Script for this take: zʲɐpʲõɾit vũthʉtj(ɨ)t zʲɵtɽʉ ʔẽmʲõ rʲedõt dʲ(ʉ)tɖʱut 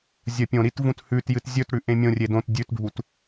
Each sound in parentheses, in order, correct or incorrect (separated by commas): correct, correct